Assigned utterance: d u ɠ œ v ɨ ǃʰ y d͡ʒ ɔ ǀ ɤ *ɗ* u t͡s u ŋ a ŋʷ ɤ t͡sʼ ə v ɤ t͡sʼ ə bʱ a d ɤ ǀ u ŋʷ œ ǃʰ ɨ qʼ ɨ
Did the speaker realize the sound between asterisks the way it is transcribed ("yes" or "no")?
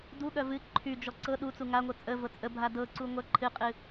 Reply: yes